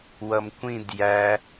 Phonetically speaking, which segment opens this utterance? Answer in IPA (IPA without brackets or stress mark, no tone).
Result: w